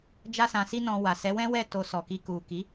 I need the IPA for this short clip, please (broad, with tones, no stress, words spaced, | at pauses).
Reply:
d͡ʒa˦sã˧si˦nɔ̃˧ wa˨sɛ˨˦wɛ̃˦wɛ˦˨ to˧sɔ˨ki˧ ku˨ ki˨˦